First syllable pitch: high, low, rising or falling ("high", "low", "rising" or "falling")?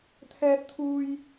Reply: high